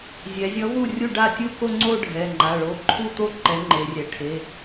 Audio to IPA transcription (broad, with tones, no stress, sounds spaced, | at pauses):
zʲ ɛ˩˧ zʲ ʌ˨˥ v u˥˩ rʲ u˥˩ ɖ a˥˩ tʲ u˥˩ k o˥˧ ŋ͡ǀ o˥˧ ɖʱ ɛ˩˧˩ ŋ͡ǃ a˩˧˩ ɭ o˨˥ ǃʰ u˥˧ t̪ o˥˩ ǃ ɛ˨˥ ŋ͡ǃ e˩˧ rʲ ɛ˩˧ ʈʰ e˩˧˩